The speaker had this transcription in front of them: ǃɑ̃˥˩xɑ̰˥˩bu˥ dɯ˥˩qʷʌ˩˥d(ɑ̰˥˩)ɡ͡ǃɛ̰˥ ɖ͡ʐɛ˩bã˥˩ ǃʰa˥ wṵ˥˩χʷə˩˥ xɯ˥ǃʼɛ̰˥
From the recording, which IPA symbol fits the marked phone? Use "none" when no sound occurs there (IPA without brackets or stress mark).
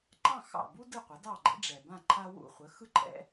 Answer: ɑ˥˩